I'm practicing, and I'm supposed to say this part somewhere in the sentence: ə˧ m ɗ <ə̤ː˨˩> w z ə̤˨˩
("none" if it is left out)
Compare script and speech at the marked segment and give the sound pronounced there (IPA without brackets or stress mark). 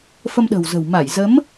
ə̤ː˨˩